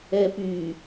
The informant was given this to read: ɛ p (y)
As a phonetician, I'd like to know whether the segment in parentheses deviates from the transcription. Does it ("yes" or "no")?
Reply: no